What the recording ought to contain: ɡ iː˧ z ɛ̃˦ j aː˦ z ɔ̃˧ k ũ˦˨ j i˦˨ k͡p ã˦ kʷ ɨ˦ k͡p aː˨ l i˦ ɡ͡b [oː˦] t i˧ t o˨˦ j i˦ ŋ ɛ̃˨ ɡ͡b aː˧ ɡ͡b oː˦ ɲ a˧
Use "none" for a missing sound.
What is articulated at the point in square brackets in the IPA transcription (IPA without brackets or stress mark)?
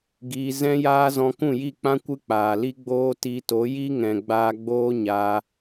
oː˦